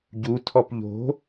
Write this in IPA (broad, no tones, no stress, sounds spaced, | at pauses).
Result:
ɟ u tʰ ɔ p ʎ o̤